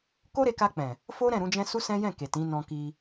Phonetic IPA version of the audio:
k o˦ ɾ e˧ k a˧ k͡p ɛ̃˨ | f o˦ ɾ ɛ̃˦˨ ɾ ũ˨˦ d͡ʒ ɛ̃˦ s u˦ s ɛ̃˦ j ɛ̃˦˨ k e˨ t ĩ˨˦ n ɔ̃˧ k i˧

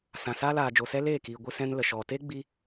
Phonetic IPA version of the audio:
s ã˨ s aː˦ l aː˨ d͡ʒ o˨ s ɛ˦ l eː˦˨ k iː˨ ɡʷ ɨ˧ s ɛ̃˧ n l ə˨ ʃ ɔ˨ t e˦ ɡ͡b i˦

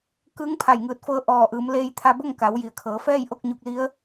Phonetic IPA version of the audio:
k ɯː˧˥ ŋ pʰ a˧˩ j ŋ ɯː˧˩ t̚ f ɤː˧˥ ʔ ɔː˧˩ ʔ ɯː˩˧ m l eː˧ j t̪ʰ a˧ b o˥˨ ŋ k a˩˧ w j i˩ ə̯ kʰ ɤː˩˧ f ɛː˥˨ j ʔ o˥˨ k̚ ɲ u˧ k̚ l i˧˥ ə̯

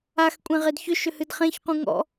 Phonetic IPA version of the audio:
a x kʷʼ ẽ ʁ e d ç ʏ ʃ ʏ h ɨ d χ ẽ ç q ũ ŋ ɔ̰

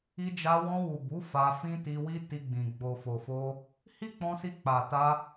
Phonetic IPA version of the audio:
i˧ d͡ʒ a˧ w ɔ̃˧ w u˨ b u˨˦ f a˧ f ĩ˦ t i˧ w i˦ t i˧ ɡ͡b ĩ˨ ɡ͡b o˨ f o˨ f o˧ | h i˦ k͡p ɔ̃˧ s i˧ k͡p a˨ t a˧

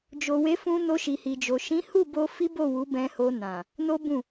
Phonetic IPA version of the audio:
d͡ʒ o˨ w e˨˦ f ũ˧ n o˧ ʃ i˨ h i˨ d͡ʒ o˨ ʃ ĩ˨˦ h u˦˨ b o˧ f i˦ b o˦˨ w u˨˦ b ɛ̃˧ h o˧ n ã˨ | n o˦ b ũ˦˨

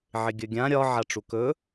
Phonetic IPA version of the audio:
ʕ ɪ ɡʲ ɵ ɡʲ ã ɾʲ ɒ ʕ a ʈ͡ʂ u k ɵ

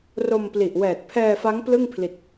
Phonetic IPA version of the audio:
r o˧ m p l i˨˩ ʔ w ɛː˨˩ t̚ pʰ ɛː˧ f a˦˥ ŋ p l ɯ˥˩ ŋ pʰ l i˨˩ t̚

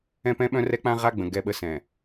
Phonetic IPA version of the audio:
ɛ̃˦ p ɛ̃˦ ɓ œ̃˦ r ɛ˦ k͡p ã˦ ʁ a˦ ɡ͡b ə̃˨ ɡ ɛ˦ ɓ ə˦ s ɛ̃˨

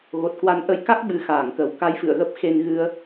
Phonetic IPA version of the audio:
ɣ o˨˩ t̚ k w a˨˦ n ʔ ə˨˦ j k a˦˥ k̚ ɓ ɨ˨˦ x aː˧˩ ŋ k ə˨˩ w k a˧ j f ɨ̰˧˨ ə̯ ɣ ə˦˥ p̚ x e˧ n ɣ ɨ˧ ə̯

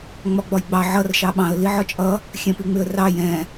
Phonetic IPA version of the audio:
ŋ͡m ɒ ɡ͡b ɒ j ɡ͡b ɑ ʕ ʌ r ʃ ɑ ɓ ɑ̃ ə̯ l i ʕ ɒ t͡ʃʼ ʌ | xʲ ɛ̃ p i ŋ͡m ɪ ə̯ r ɑ j ɛ̃

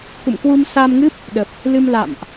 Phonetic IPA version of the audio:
t̪ʰ ṵ˧˨ m k w u˧ m s a˧ m ŋ ɨ˦˥ p̚ | ɗ ə˨˩ p̚ | l ɨ˧ m l a̰˧˨ m ʔ

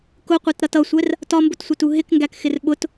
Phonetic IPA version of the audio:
k ʊ qʷ ɛ t ɾ ʌ t ʌ sʷ ɛ r | t ɒ m b ʊ t sʷ ɪ t u ɦ ɪ k ŋ ɡ æ k x ɪ r ɓ ʊ t

